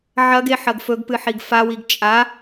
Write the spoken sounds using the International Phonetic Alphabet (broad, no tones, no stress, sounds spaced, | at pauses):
ʕ ɐ ɡ e ħ ɐ ɡ f ɵ ɡ p ɨ ħ i ɡ f a w i ɡ t͡ʃʼ a